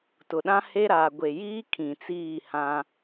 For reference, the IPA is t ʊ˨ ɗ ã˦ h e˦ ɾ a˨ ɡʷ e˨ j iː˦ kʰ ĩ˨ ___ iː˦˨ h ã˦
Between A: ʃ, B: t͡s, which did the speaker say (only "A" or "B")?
B